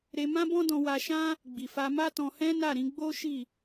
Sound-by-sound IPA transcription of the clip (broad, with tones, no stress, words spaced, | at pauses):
ɾe˧mã˦bɔ̃˦ dɔ̃˧wa˧ʃã˦ | ɡ͡bi˨fa˧ma˦tɔ̃˧ hɛ̃˦na˦˨ɾĩ˨˦ ɡ͡bo˦ʃi˦˨